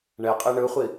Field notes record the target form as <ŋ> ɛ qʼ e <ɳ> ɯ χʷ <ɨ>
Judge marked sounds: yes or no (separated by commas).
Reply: no, yes, no